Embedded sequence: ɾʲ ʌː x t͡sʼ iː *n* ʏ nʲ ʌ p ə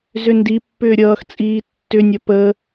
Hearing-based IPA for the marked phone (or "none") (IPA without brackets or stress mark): tː